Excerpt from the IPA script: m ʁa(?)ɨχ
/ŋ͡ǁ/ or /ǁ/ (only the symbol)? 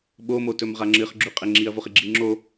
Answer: ŋ͡ǁ